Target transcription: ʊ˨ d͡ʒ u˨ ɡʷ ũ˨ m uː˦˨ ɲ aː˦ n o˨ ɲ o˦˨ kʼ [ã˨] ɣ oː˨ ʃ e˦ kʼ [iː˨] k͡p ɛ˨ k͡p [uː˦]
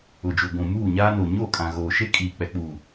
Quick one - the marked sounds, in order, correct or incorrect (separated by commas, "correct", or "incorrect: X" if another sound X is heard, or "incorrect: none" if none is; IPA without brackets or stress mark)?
correct, correct, incorrect: uː˨